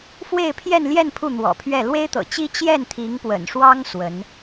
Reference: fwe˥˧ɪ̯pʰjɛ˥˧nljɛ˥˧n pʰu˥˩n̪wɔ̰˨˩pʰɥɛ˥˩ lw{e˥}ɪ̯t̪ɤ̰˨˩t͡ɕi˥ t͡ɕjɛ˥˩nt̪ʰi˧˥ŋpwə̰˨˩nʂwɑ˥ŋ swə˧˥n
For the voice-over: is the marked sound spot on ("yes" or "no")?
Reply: yes